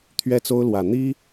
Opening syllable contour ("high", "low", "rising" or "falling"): high